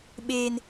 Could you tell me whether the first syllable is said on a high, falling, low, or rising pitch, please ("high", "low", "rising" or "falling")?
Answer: low